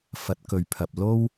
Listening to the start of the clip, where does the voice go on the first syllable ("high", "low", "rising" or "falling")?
rising